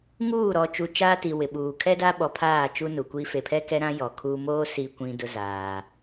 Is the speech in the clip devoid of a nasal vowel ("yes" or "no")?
no